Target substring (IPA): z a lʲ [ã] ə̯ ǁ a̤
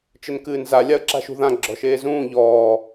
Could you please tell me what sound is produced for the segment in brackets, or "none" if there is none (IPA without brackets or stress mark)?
a